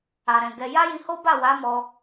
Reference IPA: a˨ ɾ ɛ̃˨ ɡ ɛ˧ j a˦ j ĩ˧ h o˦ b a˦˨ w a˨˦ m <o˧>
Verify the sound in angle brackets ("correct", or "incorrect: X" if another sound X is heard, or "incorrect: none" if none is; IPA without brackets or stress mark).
incorrect: ɔ˧